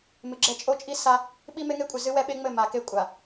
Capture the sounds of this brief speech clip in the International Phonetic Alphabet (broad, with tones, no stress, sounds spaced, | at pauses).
m ɨ˨ ɡ͡ǁ ɛ˦ t͡ʃʼ o˦ t͡ʃʼ i˦ s a˦ | ɓ i˦ m e˦ ŋ e˦ kʷʼ ɘ˨ z ɨ˦ w ɛ˦ ɓ e˦ ŋ͡m ɘ˦˨ m a˨ k e˦ kʷʼ a˨